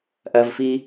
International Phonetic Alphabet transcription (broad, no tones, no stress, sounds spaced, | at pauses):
ʔ ɐ v f i